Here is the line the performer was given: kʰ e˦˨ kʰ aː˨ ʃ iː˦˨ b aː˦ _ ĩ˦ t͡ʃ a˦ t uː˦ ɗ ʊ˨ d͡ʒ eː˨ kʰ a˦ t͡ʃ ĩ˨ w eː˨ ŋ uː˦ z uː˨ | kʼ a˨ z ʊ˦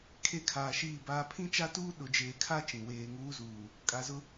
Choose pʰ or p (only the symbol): pʰ